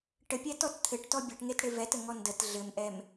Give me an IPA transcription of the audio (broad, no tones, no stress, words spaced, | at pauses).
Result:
ʈəpʲɛtɔt t̪ʰɘʈtɔ bʲɛʈŋetɽe vɛtəŋɔ ndət ɮɘmʔɛm